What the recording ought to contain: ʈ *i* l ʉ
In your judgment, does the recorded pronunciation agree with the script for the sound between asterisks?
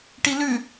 yes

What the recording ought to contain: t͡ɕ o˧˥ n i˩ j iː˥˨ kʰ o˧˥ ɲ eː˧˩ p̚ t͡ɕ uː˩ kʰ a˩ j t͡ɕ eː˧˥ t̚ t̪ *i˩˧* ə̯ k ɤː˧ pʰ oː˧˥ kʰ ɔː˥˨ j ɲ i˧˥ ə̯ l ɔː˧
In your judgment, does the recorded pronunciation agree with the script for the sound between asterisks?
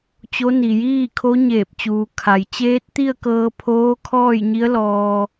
no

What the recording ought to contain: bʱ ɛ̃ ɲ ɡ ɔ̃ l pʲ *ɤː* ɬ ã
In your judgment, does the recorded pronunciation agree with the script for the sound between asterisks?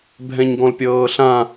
yes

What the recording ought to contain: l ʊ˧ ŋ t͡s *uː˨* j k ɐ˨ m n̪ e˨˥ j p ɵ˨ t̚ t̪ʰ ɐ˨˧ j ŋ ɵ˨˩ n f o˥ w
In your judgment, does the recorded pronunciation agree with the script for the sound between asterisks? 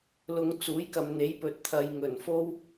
no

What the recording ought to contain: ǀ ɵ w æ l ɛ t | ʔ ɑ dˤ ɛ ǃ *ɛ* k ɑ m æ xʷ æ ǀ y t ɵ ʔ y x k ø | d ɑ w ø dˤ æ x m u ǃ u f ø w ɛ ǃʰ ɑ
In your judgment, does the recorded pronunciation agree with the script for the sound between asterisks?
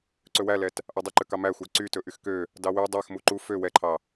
no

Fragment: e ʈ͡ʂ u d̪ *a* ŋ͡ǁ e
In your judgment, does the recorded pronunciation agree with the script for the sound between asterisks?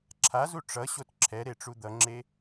no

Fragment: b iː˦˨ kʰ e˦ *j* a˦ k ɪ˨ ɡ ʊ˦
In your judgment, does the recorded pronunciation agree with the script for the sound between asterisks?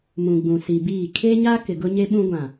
no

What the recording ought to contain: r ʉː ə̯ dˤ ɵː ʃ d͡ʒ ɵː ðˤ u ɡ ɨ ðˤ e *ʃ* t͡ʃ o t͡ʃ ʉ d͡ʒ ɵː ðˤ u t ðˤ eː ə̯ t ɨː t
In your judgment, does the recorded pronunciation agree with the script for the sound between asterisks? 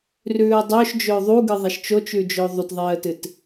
yes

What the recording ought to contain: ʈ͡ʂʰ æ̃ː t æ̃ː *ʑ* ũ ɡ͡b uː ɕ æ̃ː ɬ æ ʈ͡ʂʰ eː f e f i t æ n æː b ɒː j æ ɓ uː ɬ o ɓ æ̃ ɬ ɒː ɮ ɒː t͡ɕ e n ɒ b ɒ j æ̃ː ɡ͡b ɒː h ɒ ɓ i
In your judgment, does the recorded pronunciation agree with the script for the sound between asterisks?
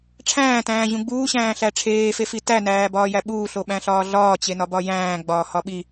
yes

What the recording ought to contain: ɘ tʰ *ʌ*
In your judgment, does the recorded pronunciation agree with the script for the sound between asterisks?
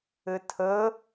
no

